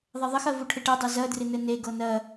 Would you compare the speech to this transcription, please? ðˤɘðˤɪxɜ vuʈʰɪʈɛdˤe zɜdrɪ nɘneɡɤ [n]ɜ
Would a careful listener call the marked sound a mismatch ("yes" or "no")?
no